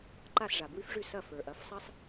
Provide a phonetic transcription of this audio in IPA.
ǃa˥˩sʐa˩bwʉ˥fʐʉ˥˩ sɐ˥˩fə˞˩ʔɐ˩˥fsˤɐ˥sˤ

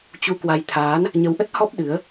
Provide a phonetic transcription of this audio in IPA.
t͡ɕu˧kwa˧j t̪ʰaː˨˦n | ɲə˨˦wʔə˦˥t̚hɔ˦˥p̚ ɗɨ˨˦ə̯

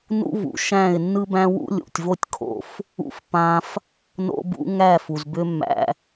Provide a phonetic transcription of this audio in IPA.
nṵ˦vṵ˨ʃæ̃˦˨ɪ̯ nːɯ˦bæ̃˦wṵ˦lʲṵ˨tʲ vo˦tʲ kʰo̰˧f | ṵ˧fpã˧f | no̰˧bṵ˧ ŋæ˦˨fu˨zbʏ˦ mːæ̰˧

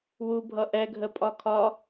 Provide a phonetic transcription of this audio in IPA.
wubʱʌ ʔɛɡʱəpʼɒ kʰɒ

